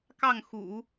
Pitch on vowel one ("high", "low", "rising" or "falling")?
falling